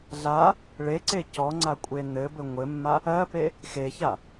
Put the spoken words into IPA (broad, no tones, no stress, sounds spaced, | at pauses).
ɮ a | ɭ e ǀ e c ɔ ŋ͡ǀ a kʷʼ e n ɘ b ɘ ŋʷ ɘ mː a | ɜ p e | x e ç a